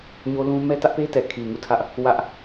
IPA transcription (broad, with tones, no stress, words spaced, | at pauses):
ɲo˦lũ˦ mɛ˦tä˦ʔpe˦ tɛ˨kʰi˨ŋu˦˨tʰä˦ʔ | wä˦ʔ